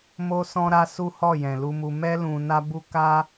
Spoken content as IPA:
m o˦ s ɔ̃˦ ɾ a˦ s u˦ h ɔ˦˨ j ɛ̃˨ l u˧ m u˧ m ɛ˦ l ũ˧ n a˦ b u˦ k a˦

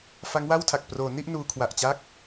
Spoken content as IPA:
f a˦˥ ŋ w a˥˩ w tʰ a˨˩ k̚ p r oː˩˦ n i˥˩ ʔ n uː˧ kʰ w a˨˩ ʔ t͡ɕ a˥˩ k̚

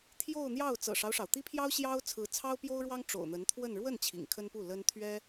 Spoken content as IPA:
t̪ʰ j o˥˧ ʊ̯ n̪ j ɑ˥˩ ʊ̯ t͡s ɤ̰˨˩ ʂ ɑ˦ ʊ̯ ʂ ɑ˩ ʊ̯ t̪ i˥ pʰ j ɑ˥ ʊ̯ ɕ j ɑ˥ ʊ̯ t͡sʰ ɹ̩˧˥ t͡sʰ ɑ˥ ʊ̯ p j o˥ ʊ̯ ɻ w ɑ˥ ŋ ʈ͡ʂ o̰˨˩ ʊ̯ n̪ ə˧˥ n t̪ʰ w ə˥˧ n ɻ w ə˥˩ n t͡ɕʰ ḭ˨˩ ŋ kʰ ə˥ n p u˥˩ l ə˥ n t̪ʰ ɥ ɛ˥

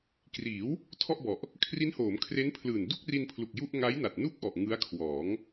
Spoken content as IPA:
k r iː˩˦ w | tʰ ɔ˥˩ ʔ b ɔ˨˩ ʔ | kʰ r i˦˥ n h oː˩˦ m kʰ r e˦˥ n pʰ l ɯː˨˩ n d u˥˩ k̚ r i˧ n pʰ l u˨˩ k̚ j u˥˩ ʔ ŋ a˦˥ j n a˨˩ t̚ n u˥˩ k̚ ʔ ɔ˨˩ ʔ ŋ ɯ˦˥ a̯ kʰ w ɔː˩˦ ŋ

